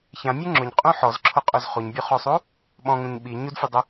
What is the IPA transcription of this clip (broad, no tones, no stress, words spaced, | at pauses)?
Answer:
çãmʲu ŋ͡ǁʊɲqʼũ ħɔzǁʰoqʼoz χuɲbʲuχosˤu | ɓɔ̃ŋũɲ ɓi ɲudfʲɛdˤe